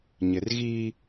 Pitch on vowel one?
low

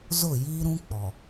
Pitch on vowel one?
falling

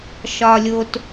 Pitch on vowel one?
low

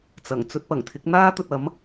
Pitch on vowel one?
low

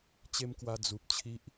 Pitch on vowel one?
high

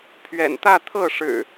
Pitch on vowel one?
low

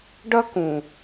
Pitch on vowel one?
high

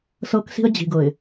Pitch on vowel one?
high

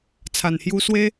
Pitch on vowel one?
low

